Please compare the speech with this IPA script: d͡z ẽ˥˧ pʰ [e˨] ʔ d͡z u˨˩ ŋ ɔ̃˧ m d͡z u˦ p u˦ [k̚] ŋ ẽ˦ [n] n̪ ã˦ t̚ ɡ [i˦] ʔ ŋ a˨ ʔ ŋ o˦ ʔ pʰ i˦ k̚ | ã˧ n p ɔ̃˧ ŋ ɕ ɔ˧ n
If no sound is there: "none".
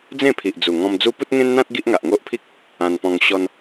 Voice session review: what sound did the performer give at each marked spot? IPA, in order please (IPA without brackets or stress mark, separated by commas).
i˨, t̚, n, i˦